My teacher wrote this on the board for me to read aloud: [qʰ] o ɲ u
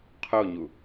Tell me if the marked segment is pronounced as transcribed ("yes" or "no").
yes